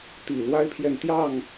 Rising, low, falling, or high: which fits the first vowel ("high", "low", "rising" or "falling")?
low